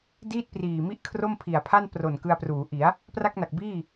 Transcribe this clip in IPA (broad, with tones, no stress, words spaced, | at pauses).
diː˥˩t̚priː˨˩mi˥˩ʔ kʰro˥˩mpʰi˨˩a̯pʰa˥˩n pro˨˩n kɯ˧a̯pruː˩˦ʔi˩˦a̯ | pra˥˩k̚na˨˩k̚ biː˥˩